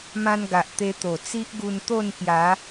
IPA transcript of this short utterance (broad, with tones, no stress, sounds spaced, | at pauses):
m ã˦ n ɡ a˨ ʔ t̪ e˧ t̪ o˨˩ t͡s i˦ ʔ ɡ u˧ n t̪ o˥˧ n k j a˨˦